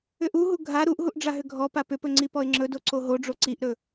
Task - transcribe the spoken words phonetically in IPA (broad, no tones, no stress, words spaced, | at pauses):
ʏʔuɦu ɡʱa ɾuʔɦuʔ ɖ͡ʐaɦʏɡʱɔpa pʏpɵ ŋ͡ǀipɔɪ̯ŋ͡ǁɵdo ǀoɦoɖ͡ʐo ǀiʔɾɵ